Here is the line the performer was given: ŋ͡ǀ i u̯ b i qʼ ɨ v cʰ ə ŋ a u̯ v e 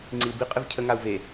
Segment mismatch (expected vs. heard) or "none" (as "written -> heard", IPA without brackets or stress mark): none